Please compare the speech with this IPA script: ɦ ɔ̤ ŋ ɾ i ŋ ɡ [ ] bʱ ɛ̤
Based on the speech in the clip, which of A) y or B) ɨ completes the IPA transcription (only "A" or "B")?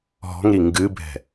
B